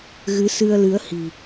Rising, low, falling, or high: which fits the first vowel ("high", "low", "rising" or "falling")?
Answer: rising